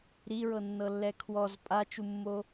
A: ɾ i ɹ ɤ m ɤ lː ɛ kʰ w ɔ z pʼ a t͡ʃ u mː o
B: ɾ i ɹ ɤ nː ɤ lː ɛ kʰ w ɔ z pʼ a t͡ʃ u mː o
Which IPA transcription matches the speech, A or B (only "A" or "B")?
B